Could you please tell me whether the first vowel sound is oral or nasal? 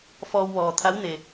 oral